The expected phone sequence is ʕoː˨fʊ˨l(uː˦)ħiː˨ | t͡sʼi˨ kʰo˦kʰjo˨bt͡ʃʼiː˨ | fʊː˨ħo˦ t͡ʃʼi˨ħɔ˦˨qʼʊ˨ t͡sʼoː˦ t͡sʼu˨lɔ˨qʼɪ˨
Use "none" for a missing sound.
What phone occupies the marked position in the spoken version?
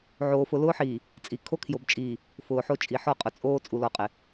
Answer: ʊː˦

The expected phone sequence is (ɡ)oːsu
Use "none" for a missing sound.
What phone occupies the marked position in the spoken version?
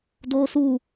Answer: d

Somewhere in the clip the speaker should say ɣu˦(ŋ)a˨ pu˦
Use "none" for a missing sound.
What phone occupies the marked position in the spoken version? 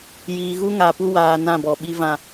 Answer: ŋ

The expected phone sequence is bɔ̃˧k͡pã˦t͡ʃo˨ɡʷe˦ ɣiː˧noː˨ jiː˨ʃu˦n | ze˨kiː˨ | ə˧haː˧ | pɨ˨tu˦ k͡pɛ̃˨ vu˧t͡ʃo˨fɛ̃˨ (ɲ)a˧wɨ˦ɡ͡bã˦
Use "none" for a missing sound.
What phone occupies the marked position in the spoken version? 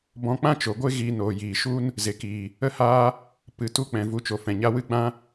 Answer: ɲ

